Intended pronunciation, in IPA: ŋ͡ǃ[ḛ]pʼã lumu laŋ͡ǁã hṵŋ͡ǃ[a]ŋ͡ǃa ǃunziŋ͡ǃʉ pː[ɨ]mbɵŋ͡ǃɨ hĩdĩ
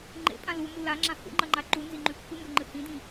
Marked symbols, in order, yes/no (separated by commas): yes, no, yes